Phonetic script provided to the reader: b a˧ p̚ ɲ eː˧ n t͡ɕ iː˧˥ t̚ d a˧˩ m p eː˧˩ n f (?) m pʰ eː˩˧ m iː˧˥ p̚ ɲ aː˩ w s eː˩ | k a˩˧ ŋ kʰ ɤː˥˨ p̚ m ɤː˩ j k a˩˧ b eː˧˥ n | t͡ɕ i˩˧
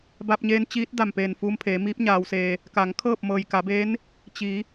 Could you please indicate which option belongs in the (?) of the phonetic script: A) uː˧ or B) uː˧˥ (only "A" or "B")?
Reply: A